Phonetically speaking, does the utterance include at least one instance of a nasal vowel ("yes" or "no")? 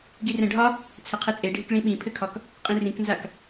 yes